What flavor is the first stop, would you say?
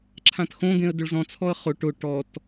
click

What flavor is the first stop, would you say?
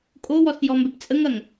ejective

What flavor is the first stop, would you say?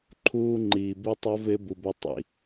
click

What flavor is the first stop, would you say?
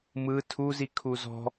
aspirated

